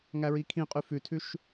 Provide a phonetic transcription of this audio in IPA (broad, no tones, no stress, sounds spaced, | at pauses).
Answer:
ŋ æ ɹ i kʰ ĩ qʼ ʉ f ʉ tʰ ʉ ʃ